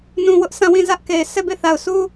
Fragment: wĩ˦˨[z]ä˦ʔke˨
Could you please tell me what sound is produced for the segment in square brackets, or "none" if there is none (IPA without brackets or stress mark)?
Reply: z